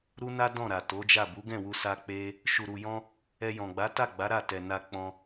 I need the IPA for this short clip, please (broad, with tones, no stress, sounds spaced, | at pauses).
ɾ u˦ n a˦ d ɔ̃˦˨ ɾ a˨ t o˨˦ d͡ʒ a˦˨ b u˨˦ ɡ ɛ̃˦˨ w u˧ s a˦ k͡p e˦ | ʃ u˨ ɾ u˨ j ɔ̃˧ | ɛ˧ j ɔ̃˨ ɡ͡b a˨˦ t a˦˨ ɡ͡b a˨˦ ɾ a˦˨ t ɛ˨ n a˧ k͡p ɔ̃˧